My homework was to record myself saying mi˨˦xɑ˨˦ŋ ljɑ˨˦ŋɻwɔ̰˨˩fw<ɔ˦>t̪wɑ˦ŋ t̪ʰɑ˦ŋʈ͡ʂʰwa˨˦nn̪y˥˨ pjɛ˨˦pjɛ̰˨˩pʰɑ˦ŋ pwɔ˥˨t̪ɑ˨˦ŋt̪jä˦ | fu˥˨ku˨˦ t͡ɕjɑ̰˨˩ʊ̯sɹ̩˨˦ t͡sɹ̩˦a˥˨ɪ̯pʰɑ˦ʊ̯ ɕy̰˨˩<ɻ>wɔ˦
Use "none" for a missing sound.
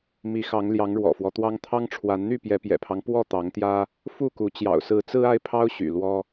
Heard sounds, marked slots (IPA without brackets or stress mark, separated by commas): ɔ˦, l